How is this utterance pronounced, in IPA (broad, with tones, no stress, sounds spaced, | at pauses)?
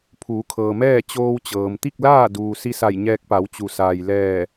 pʰ uː˩˧ kʰ ɤː˩ m ɛː˥˨ t͡ɕ oː˧ w t͡ɕ ɤː˩ m t̪ i˥˨ k̚ l aː˥˨ d uː˩ s i˧ s a˧˩ j ɲ ɛː˧ k̚ p a˩˧ w t͡ɕ u˩ s aː˩ j l ɛː˧˩